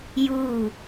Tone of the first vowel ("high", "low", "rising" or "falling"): falling